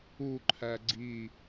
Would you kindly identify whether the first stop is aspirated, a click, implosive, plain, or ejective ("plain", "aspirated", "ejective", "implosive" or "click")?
click